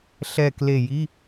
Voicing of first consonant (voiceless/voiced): voiceless